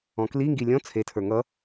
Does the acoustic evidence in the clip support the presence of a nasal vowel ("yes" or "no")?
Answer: yes